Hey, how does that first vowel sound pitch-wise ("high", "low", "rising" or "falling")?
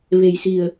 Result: low